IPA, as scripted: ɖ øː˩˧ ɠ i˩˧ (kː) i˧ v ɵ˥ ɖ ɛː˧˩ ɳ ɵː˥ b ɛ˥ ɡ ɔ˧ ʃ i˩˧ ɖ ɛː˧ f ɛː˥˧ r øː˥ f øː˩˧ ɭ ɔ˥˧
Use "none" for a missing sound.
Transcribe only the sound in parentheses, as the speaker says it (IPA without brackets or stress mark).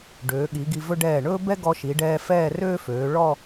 ɡ